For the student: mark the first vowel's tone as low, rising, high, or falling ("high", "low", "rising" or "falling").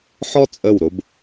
high